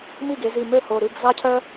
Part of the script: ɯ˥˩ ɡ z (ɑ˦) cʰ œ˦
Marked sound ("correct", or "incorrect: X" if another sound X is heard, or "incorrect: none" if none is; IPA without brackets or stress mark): correct